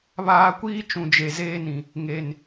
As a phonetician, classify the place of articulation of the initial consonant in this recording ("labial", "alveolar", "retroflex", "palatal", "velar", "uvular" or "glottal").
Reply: labial